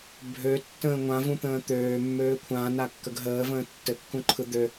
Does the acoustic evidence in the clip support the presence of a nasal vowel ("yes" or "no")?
yes